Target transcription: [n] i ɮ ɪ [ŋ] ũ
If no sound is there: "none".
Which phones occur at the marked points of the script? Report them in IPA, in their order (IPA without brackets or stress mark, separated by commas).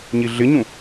ɲ, ɲ